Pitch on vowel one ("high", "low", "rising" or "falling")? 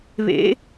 rising